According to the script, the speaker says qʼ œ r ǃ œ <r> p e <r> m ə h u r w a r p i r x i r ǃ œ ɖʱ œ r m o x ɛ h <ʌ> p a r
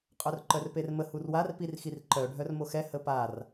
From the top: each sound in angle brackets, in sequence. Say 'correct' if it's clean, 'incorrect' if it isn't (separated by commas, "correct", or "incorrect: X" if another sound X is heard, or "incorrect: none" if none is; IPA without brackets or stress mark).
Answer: correct, correct, incorrect: ə